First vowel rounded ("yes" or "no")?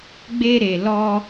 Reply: no